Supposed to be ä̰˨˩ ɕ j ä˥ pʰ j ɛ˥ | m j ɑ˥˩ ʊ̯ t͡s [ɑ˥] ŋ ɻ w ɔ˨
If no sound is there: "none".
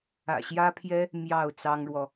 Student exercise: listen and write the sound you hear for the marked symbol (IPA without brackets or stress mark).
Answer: ɑ˥